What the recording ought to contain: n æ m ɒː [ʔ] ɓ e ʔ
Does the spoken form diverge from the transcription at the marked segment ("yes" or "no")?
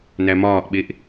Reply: no